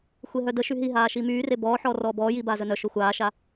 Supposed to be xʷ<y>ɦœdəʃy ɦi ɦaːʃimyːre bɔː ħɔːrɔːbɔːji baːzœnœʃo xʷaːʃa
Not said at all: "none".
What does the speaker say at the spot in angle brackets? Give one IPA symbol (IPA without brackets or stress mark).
e